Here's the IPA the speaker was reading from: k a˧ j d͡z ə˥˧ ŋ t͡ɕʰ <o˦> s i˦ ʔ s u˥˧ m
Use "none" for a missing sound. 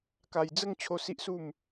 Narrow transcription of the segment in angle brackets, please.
o˦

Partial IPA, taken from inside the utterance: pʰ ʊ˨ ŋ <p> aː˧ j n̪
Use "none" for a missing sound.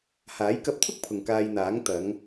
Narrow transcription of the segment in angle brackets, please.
k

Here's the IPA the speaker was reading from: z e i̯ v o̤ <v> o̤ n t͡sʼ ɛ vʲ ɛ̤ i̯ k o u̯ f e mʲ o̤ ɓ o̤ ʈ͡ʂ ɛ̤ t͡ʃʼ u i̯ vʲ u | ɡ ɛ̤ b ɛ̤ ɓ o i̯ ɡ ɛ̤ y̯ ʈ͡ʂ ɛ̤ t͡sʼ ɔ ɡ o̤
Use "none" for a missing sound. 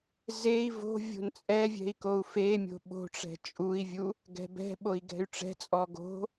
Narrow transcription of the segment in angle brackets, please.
vʲ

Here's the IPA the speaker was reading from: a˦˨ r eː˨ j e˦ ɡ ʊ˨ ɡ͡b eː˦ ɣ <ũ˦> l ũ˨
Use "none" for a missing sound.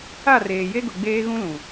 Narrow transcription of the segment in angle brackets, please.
ũ˦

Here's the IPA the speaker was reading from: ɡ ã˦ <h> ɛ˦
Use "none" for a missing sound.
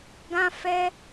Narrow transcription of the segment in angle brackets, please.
f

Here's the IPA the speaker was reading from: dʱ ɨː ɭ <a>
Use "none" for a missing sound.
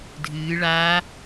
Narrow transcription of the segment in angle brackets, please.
a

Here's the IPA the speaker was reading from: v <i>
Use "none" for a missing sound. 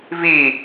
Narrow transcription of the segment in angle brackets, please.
i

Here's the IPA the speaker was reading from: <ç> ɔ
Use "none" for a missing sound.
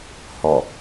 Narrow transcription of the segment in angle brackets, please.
h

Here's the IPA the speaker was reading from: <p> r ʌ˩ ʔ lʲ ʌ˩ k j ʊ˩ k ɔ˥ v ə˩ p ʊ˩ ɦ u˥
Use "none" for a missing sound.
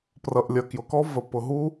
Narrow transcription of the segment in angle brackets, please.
p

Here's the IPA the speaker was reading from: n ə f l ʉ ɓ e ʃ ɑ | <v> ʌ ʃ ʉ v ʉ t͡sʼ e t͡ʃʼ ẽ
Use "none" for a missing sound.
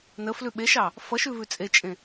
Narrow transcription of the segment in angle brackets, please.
f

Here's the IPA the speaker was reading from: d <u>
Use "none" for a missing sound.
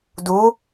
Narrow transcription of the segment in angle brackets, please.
u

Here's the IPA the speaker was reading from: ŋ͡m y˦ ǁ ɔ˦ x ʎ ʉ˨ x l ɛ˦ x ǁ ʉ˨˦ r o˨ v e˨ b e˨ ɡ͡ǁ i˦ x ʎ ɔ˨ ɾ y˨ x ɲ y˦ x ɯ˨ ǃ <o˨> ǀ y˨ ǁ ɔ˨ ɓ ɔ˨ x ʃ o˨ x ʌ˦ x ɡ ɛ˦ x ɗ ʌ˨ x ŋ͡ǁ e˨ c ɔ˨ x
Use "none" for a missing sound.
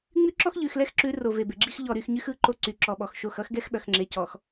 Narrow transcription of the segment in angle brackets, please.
o˦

